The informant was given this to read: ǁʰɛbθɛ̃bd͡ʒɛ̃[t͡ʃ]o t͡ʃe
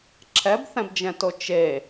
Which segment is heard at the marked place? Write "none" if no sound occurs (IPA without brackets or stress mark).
t